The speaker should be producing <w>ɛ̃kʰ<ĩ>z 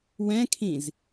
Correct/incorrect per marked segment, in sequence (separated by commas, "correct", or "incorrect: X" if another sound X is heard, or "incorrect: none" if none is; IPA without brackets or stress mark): correct, correct